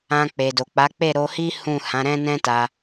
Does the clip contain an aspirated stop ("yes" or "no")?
no